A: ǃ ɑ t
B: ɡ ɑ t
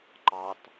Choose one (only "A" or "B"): A